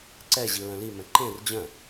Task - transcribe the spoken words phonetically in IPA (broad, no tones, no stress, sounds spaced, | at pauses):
ǀ ɛ ʑ i ɹ œ̃ l i m ɛ̃ ǃ ẽ r d͡ʑ œ̃